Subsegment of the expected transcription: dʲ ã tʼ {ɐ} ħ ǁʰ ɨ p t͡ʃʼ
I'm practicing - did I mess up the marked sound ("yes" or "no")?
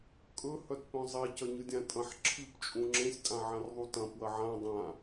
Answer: yes